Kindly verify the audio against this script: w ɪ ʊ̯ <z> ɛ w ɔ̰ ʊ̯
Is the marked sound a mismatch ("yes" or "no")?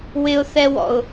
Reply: yes